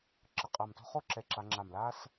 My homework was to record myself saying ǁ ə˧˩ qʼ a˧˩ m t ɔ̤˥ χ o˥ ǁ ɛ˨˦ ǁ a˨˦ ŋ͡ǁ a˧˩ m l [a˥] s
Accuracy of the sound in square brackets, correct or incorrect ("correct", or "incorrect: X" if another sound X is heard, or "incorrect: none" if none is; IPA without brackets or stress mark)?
incorrect: aː˥